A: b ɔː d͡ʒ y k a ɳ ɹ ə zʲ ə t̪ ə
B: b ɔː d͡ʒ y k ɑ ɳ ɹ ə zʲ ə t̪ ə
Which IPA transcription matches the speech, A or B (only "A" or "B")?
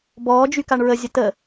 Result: A